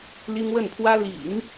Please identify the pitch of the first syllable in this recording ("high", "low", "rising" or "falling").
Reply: high